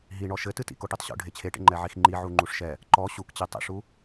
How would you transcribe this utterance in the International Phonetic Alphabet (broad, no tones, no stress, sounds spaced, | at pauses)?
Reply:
ɦ i ɳ ɔ ʃ ɘ t ɨ t ḭ k o ʈ i tˤ ɕ o̰ ɖʱ e t͡ɕʰ e ʈ ḛ ŋ͡ǃ ɛ ʕ i x ŋ͡ǃ i ʕ u ŋ͡ǃ u ʂ ʃ ɛ | ǃ ɔ ɕ u k t͡ɕ e tˤ ḭ ʂ u